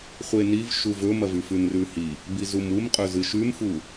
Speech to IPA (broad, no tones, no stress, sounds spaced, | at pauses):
χʷ e n i v ʃ u v ɵ m ɐ v ʉ f ʉ n r ʉ h i | b i z u m u m qʼ ɵ z ɨ ʃ ʉ m f u